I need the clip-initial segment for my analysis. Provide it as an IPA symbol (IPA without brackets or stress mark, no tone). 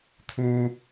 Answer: kʰ